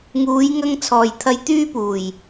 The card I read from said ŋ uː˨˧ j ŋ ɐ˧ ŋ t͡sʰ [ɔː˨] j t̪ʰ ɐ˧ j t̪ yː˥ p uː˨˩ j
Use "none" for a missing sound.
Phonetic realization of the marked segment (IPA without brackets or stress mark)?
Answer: ɔː˨